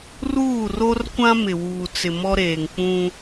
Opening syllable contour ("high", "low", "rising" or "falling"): falling